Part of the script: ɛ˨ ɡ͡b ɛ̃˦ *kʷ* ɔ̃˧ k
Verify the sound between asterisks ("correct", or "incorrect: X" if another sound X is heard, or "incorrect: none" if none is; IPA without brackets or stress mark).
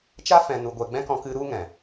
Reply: incorrect: k